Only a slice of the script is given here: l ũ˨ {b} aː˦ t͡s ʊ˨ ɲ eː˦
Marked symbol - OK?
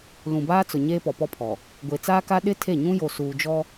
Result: yes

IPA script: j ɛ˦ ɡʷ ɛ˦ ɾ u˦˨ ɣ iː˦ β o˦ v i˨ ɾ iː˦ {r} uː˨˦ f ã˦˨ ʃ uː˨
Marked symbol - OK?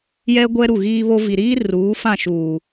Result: yes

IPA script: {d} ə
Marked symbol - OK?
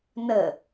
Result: no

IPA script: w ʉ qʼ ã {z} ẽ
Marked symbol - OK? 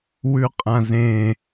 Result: yes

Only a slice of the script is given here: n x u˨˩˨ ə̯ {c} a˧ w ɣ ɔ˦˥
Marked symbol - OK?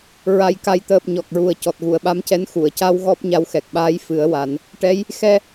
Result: yes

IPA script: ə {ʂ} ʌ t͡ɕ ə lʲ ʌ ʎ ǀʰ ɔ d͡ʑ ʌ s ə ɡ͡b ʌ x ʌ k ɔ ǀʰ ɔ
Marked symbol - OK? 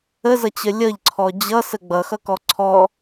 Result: no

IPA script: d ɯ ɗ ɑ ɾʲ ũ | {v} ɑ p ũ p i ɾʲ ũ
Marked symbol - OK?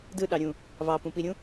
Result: yes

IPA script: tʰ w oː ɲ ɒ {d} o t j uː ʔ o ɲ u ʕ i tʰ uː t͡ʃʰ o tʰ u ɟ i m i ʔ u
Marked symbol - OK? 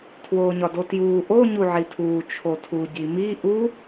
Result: yes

